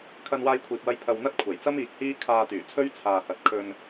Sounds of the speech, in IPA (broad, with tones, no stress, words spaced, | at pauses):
kʰɐ˧nwaː˧jkʷʰiː˨p̚wɐ˧j pʰɐ˧w n̪ɐ˥t̚kʷʰɐ˨˩j t͡sɐ˥miː˨k̚ hiː˥ kʰaː˧t̪yː˨˩ t͡sʰɵ˥ɥt͡sʰaː˨hɐ˨t̚kʰɵ˧n